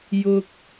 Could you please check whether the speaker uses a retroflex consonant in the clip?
no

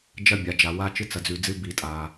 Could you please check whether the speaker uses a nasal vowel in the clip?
no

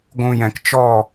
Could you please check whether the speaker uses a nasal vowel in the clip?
yes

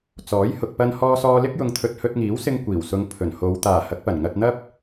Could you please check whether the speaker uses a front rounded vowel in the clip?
no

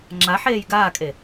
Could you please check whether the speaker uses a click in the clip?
yes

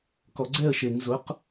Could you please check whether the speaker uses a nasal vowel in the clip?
no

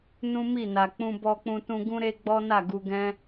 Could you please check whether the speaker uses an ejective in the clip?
no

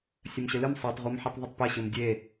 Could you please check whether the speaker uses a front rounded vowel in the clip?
no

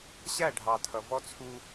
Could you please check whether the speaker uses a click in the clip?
no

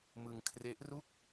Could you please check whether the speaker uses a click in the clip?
no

